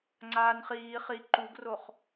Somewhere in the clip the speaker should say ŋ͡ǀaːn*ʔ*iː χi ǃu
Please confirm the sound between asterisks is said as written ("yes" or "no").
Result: no